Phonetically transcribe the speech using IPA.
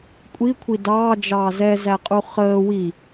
kʷʼikʷʰi dɑːd͡ʒɑː zɛzæqʼu χəː wi

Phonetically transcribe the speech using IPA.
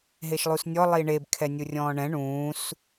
ɦeʃlˠusnʲɔ lˠiɳeb kʰɛnʲurʲɔ̃ːɳɛ̃ ɳũːs

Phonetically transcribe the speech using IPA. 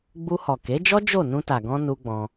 ɡ͡bu˧hɔ˨ke˨˦d͡ʒɔ˦ d͡ʒo˦˨ nũ˧ta˨ɡɔ̃˧ nu˦ɡ͡bɔ̃˧

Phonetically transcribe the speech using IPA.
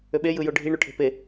øɓe jɯjoɖʱi ɳuʈʰe̤pe

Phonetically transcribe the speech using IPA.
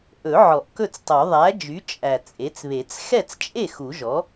ʔɵ˨˩˦ ʕɔ˨˩˦ʔkɵ˥˩t͡stˤo˨˩˦ ðˤæ˩˥d͡ʒy˩˥ t͡ʃʼæ˨˩t͡sʼe˩˥t͡sβe˨˩˦t͡s xɛ˥˩t͡st͡ʃʼe˥˩ xu˨˩˦ʒɔ˩˥

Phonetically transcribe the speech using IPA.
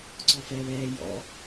ǀɔfɛ βɛː jɔ̰

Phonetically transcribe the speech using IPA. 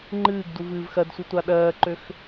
ŋ͡ǃɨːɡ duvɨːvxɜdsʷɨ tʷaɗɜːǃøx

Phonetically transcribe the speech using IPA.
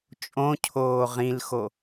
t͡ʃʼõcʰoː ʁĩlxo

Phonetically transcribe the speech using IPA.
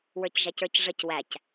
wə˞cʒæcə˞cʐəc wæc

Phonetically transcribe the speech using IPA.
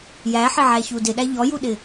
jæħɪʕæçu dɪɗæ ʎɔjuɗɪ

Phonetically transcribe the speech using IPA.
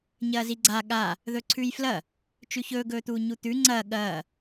ɲɐːziɡ͡ǀa ɠa | ðɵǀʰʉjflɐ | t͡ʃʉçɵːɡɵːt̪uː ɲut̪ʉ ŋ͡ǀɐː ɠɐː

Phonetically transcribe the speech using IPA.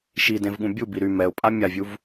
ʃidẽvɠũ bʲubi ɾy mɛʊ̯pʼa mʲavʲuv

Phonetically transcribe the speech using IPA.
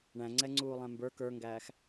ɳæ̃ŋ͡ǀɛŋ͡ǀuːlˠæ̃ mbə˞ kə˞ŋɡæːx

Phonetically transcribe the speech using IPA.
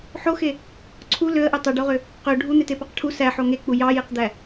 ħoxe | ǀʰu løə̯ʔø tˤøɖoʁø | qø ɖʱun̪etepɑq ʈʰu sæħo ŋek͡pu jɑjeqd̪æ

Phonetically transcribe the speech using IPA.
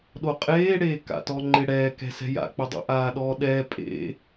ɗoqʼeːɽeː ka̰tɔŋ͡ǃɪ ɽɛːkɛ̤sɛ̤ ja̰k͡pʊdˤo̰ ʔaːɗɔːɗɛː pʼḛ

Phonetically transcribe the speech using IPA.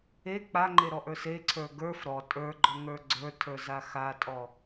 e k͡paŋ͡ǃeɾɔʔə˞ seǀʰə˞ ɡə˞f ɾɔ tʼə˞ɡ͡ǃɔŋə˞ ɡ͡ǀə˞tʰə˞za xatʼɔ

